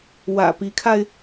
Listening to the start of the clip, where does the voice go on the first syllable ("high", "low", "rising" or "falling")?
low